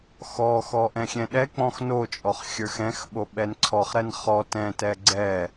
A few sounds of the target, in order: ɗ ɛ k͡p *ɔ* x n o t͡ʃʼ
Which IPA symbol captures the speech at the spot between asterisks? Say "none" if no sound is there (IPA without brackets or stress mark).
ɔ̃